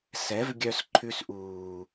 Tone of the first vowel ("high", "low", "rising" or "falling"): rising